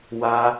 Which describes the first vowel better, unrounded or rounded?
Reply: unrounded